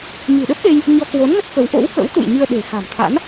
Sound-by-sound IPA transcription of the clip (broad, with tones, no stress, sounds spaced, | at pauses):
ɲ ɨ̤˨˩ ɗ ə˦˥ p̚ ɗ e˧ j | ɲ ɔ˧ k w o˨˦ n ŋ ə˦˥ t̚ k ə˨˦ w ʔ o̰˧˥ w k ə̰˧˥ w t̪ ṵ˧˨ j ɲ ɨ˧ ə̯ ɗ e̤˨˩ x a̤˨˩ m t̪ʰ a̰˧˥ n